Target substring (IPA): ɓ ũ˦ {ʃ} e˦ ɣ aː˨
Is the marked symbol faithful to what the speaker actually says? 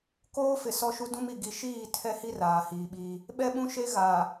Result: yes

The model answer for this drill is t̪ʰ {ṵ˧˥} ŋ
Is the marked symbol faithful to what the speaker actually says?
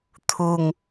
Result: no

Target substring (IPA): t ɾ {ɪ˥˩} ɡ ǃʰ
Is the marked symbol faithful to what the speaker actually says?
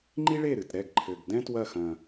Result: no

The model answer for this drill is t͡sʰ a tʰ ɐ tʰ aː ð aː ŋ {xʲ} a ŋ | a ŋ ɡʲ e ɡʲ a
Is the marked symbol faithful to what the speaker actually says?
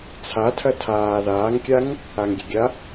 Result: no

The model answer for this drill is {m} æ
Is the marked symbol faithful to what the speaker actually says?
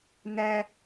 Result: no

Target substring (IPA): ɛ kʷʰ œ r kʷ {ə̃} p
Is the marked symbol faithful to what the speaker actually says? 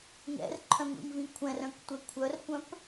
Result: no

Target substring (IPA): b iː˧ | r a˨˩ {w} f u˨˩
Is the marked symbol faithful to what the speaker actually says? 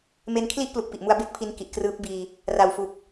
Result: yes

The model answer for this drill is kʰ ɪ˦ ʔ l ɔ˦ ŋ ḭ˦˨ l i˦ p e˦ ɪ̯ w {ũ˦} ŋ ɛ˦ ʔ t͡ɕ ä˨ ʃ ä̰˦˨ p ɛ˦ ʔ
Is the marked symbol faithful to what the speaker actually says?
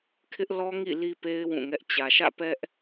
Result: no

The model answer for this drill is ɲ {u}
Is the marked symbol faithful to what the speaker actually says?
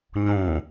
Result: no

